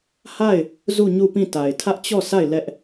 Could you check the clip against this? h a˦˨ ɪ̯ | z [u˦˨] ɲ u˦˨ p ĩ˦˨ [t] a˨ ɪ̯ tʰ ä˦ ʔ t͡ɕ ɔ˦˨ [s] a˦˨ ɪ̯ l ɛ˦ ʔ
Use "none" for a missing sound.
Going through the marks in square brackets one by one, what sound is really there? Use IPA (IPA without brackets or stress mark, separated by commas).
u˦˨, t, s